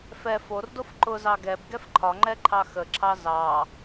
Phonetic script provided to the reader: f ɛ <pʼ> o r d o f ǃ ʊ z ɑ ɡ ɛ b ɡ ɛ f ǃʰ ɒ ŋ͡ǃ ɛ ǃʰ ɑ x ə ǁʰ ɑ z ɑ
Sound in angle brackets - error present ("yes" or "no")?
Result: yes